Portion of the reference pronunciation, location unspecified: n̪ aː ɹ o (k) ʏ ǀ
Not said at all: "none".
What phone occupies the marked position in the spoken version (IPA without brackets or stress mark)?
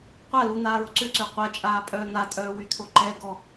ǀ